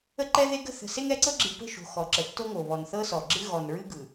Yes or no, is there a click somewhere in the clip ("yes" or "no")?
yes